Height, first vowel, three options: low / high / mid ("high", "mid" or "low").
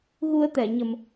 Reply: high